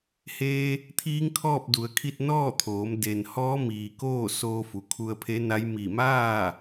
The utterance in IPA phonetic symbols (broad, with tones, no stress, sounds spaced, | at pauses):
h eː˧ | t̪ʰ iː˧˥ ŋ kʰ ɔː˥˨ p̚ d u˩ ə̯ kʰ i˥˨ t̚ n ɔː˥˨ t̪ʰ oː˩˧ m d e˩ n h ɔː˧˥ m iː˩ k oː˥˨ s oː˧ f u˩ kʰ u˧ ə̯ pʰ e˧˥ n a˧˥ j m i˧˩ m aː˥˨